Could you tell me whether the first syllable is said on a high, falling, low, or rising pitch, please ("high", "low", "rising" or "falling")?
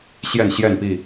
falling